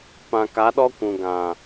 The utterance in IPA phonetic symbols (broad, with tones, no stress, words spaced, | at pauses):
pã˨ka˨˦ɗɔ˦kʷũ˨ ɡã˨